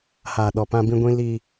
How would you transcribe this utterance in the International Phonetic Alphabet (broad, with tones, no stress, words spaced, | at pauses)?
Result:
haː˨ɗɔ˨ pã˦bĩ˦ɡʷĩ˦ li˦